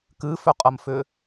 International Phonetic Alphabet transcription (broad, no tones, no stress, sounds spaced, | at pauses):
k ɨ f ʏ qʼ ə m f ʏ